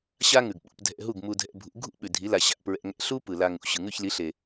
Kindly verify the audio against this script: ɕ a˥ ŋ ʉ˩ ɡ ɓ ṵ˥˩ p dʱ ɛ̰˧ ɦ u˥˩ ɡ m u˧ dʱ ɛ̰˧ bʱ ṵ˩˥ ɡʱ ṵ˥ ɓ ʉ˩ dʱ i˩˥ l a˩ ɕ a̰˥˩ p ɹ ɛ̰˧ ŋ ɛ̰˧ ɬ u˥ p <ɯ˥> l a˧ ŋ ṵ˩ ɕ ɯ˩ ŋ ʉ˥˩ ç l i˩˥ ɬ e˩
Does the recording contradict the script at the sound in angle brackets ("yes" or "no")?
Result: yes